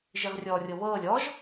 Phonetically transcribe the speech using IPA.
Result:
ʒ i ʁ rʲ ɔː rʲ ɤ β ɤː lʲ ɔ ʒ

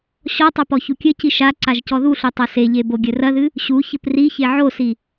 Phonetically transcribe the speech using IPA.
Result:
ɕ ɔ tˤ ɘ p ɔ ç u kʲ ɘ c i ʃ a ǀ a ʒ c ɔ ð u ɬ o tˤ ɐ s e ʎ e b o ɡʲ ɘ r ɐ ð ɨ | ɕ u ç ɘ p r i ç e ʕ o s i

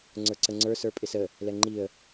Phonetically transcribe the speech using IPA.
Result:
ŋ͡ǀ ə˞ ǀ ə ŋ͡ǀ ə˞ s ə˞ pʼ ɪ s ə | l ɛ ŋ͡ǃ i ə̯

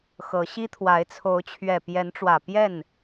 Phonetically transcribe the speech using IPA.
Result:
x ɤ˨˦ ɕ i˦ t̪ʰ w a˨˦ ɪ̯ t͡sʰ o˨˦ ʊ̯ t͡ɕʰ ɥ ɛ˨˩ p j ɛ˨˦ n ʈ͡ʂ w ä˨˩ p j ɛ˥˨ n

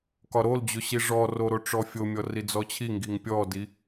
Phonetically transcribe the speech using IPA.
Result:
k ɒ ɾ o l d͡ʑ o ɕ i ʐ ɔ r o ɾ o ʈ͡ʂ ɔ fʲ o mʲ ɔ r i d͡z ɔ t͡ɕʰ i ŋ ɡ i ŋ pʲ ɔ d i

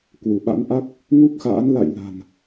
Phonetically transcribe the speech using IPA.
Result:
k w u˧˩ ɓ a̰˧˥ n ʔ a˦˥ k̚ | ŋ u˦˥ k̚ x a̰ː˧˥ n l a̰˧˨ j l a̤˨˩ n

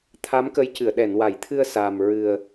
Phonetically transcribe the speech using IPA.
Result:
t̪ʰ a˧˥ m k ə˧˥ j c ɨ˨˩˨ ə̯ ɗ ɛ˨˩˨ n w a˨˩˨ j t̪ʰ ɨ˧ ə̯ s a˨˩ m ɹ ɨ˨˩ ə̯

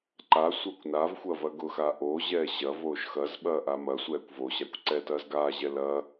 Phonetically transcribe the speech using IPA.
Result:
ǃ a sʷ ɐː kʷ n a v xʷ ɐː v ɐ ɡ ʊ x a ʔ oː ʑ ɛː ɕ ɐ v oː ʃ x ɐ z ɓ ɐː ʔ a m ɐ sʷ ɛː kʷ v o ɕ a kʷ ǀ ɛ t ɐː z ɡ aː ʑ ɛ l ɐ

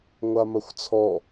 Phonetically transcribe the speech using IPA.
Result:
ŋʷ a m ɐ xʷ t͡sʰ ɔ

